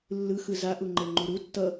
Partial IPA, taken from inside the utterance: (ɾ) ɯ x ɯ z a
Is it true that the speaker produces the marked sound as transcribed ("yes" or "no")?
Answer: no